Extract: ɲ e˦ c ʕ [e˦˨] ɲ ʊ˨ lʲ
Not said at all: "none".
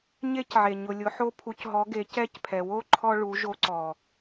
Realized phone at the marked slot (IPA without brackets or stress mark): e˨